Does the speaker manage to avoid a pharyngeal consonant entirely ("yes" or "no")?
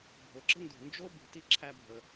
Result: yes